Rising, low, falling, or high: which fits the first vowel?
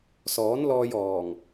rising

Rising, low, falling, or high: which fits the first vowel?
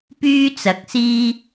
high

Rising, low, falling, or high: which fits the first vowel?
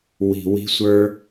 low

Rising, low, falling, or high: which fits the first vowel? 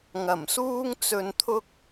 low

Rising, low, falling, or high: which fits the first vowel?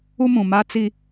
high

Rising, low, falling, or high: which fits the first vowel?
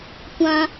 high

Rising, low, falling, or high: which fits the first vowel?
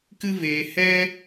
high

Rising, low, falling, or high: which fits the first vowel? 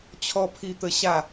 falling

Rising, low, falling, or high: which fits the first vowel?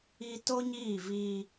high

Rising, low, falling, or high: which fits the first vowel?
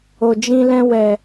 low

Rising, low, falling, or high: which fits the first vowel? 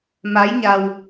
rising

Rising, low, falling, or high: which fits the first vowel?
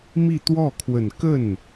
falling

